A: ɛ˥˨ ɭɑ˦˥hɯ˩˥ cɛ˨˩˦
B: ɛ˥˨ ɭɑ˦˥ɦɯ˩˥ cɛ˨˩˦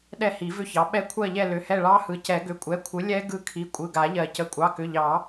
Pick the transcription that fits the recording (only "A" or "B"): A